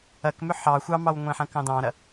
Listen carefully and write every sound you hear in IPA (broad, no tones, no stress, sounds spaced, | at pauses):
ɐ k m ʏ ħ ɑ xʷ ɑ m ɑ w ŋʷ ẽ ħ ɐ̃ k ɑ̃ d ɑ̃ ɾ ɐ